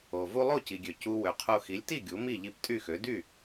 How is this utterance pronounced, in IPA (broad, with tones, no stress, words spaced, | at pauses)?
o˩ vu˧lˠo˥˩ci˩ɡʲø˩ cu˧ wø˩qʰo˧ xi˩˥lʲti˥˩ ɡʲu˩˥mi˥˩ʎi˧p tʼy˥˩xø˩˥ dy˥˩